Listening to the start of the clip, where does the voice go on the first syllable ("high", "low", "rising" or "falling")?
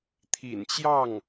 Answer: low